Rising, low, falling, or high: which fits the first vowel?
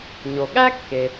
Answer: low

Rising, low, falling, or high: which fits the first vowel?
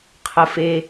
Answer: low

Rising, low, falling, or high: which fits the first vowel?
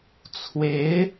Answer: rising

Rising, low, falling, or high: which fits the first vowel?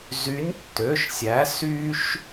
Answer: rising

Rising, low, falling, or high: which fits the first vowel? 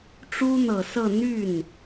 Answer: high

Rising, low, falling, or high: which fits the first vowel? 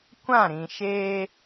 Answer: falling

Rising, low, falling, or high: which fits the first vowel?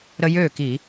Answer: high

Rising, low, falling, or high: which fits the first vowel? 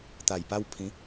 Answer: low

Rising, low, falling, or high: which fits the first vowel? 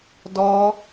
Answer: high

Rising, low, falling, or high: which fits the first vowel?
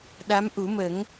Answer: rising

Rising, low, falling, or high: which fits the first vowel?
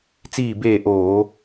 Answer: falling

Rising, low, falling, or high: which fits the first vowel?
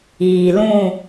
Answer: low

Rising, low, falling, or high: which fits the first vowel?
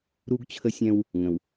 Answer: high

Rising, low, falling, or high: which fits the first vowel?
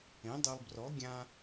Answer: rising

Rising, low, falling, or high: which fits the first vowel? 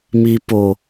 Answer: low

